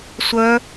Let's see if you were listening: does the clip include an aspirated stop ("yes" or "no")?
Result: no